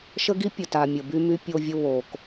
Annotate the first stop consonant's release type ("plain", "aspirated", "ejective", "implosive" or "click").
plain